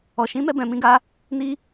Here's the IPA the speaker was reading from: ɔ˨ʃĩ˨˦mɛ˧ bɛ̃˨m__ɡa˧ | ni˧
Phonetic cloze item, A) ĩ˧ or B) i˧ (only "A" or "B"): A